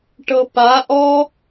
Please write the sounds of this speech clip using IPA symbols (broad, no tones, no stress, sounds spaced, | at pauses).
ʈ ɤ p a ʔ ɔ